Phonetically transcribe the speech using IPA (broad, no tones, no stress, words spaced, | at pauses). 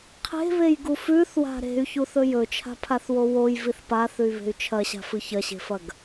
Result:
qʰe̤βejɡu fʉθwa̤ ɾe̤y̯çuθɵ jɵt͡ʃʰa̤pʰaθwo wojviθ paθʉy̯βe̤y̯ t͡ʃʰɐɕa̤fɨ çɐɕe̤fɐɡ